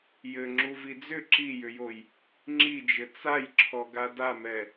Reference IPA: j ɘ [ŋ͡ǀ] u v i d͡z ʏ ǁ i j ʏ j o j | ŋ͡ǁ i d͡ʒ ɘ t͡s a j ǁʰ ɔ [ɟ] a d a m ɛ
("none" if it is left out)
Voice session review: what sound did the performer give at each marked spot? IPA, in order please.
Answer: ŋ͡ǁ, ɡ

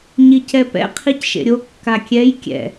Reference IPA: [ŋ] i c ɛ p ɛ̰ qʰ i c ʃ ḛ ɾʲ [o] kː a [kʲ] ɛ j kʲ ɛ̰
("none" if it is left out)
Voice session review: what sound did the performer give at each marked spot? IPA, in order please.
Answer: ɲ, o, kʲ

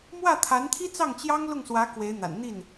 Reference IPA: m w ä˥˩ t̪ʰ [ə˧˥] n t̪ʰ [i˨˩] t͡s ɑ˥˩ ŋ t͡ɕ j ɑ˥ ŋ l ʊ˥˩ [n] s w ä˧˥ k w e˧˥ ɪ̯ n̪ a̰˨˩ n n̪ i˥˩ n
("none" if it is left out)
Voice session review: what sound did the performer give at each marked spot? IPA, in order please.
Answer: a˧˥, i˥, ŋ

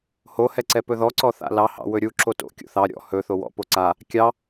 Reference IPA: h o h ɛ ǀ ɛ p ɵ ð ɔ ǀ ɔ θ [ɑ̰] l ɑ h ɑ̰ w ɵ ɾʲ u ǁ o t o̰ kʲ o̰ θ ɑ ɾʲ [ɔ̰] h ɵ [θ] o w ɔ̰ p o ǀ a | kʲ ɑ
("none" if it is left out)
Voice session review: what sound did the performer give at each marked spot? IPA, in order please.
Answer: a̰, ɔ̰, θ

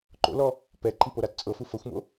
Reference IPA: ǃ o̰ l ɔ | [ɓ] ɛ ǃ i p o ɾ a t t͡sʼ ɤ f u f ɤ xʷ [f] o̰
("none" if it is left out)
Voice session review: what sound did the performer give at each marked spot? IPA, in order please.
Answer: p, m

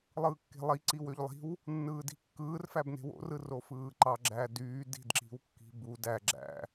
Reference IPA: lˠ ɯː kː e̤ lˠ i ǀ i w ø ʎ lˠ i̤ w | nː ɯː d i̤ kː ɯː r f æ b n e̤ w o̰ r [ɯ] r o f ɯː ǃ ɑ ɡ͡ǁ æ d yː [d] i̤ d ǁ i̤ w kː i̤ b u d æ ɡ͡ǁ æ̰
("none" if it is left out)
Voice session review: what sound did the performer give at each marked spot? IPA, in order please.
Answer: ɯ, d

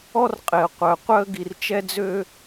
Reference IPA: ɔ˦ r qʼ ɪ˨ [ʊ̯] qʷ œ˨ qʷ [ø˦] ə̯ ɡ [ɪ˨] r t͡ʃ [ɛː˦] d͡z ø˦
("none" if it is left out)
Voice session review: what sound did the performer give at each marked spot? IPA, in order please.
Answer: ə̯, œ˦, i˨, ɛ˦

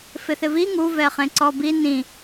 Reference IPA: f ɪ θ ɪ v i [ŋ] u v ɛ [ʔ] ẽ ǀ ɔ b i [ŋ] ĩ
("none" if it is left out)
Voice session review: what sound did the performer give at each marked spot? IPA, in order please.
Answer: ŋ, χ, n

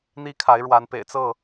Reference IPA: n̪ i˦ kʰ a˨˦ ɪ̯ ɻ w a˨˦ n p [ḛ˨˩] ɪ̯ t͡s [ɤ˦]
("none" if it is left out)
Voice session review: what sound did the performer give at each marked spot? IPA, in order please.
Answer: ḛ˨˩, ɤ˥˨

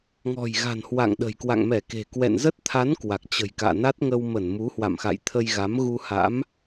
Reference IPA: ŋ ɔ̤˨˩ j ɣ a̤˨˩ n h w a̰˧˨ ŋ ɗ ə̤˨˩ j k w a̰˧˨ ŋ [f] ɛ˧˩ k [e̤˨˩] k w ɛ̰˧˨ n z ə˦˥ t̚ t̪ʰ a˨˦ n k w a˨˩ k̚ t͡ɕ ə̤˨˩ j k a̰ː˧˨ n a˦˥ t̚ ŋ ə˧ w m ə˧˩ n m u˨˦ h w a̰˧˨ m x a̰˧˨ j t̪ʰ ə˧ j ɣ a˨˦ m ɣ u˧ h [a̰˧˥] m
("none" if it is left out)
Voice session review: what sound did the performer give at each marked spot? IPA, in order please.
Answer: m, e̤˨˩, a̰˧˥

